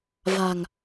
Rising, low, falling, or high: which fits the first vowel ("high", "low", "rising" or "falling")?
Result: low